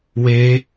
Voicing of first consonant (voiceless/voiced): voiced